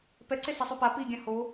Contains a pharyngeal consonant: no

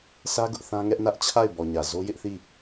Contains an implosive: no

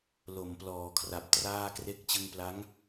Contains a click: no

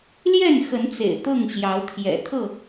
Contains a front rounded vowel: no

